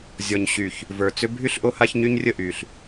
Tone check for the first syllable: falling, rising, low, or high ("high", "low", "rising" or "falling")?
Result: low